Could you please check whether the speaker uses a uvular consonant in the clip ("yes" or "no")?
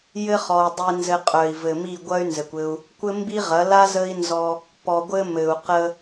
yes